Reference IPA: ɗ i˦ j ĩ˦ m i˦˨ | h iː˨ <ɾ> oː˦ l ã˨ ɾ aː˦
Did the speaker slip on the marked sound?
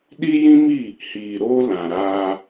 no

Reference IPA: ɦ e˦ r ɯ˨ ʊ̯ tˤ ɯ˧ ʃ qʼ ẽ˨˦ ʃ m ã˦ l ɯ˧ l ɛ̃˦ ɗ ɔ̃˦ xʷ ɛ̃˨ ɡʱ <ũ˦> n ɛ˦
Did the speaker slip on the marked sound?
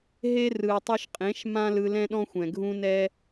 no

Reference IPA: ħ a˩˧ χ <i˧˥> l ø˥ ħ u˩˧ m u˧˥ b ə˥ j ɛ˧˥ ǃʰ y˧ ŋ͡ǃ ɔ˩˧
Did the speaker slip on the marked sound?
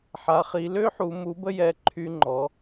yes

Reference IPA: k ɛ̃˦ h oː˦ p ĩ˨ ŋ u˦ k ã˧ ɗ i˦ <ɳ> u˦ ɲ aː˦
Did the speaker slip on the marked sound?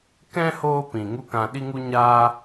yes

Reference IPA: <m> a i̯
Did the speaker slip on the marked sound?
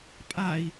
yes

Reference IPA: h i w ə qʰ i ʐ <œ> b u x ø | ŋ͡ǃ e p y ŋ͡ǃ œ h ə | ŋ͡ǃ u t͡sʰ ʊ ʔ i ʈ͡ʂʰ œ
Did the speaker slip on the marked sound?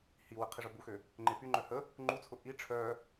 no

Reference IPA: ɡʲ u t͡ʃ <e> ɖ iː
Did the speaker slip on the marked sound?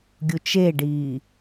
no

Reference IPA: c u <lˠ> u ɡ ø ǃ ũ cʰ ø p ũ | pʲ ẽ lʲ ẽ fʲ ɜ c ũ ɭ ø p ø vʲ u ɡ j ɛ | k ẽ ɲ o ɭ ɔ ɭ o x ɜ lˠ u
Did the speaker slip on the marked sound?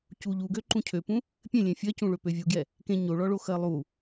yes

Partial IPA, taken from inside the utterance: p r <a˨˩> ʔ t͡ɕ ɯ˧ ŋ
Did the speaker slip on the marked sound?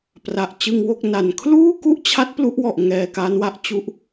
no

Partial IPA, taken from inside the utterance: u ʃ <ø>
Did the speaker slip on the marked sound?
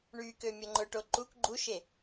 yes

